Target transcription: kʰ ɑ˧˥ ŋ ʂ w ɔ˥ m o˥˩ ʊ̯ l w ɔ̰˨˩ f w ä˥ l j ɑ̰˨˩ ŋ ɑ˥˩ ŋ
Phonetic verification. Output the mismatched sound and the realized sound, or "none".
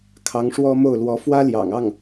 ɔ̰˨˩ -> ɔ˧˥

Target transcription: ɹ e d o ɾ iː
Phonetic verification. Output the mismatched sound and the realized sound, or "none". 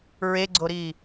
d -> ɡ͡ǀ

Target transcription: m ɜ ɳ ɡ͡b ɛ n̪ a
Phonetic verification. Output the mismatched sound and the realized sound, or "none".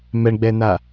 ɜ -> ɛ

